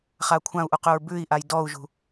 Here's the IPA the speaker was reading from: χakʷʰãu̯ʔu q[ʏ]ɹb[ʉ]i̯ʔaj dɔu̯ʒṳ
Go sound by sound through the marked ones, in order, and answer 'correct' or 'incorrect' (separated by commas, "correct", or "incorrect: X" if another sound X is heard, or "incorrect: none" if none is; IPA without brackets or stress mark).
correct, correct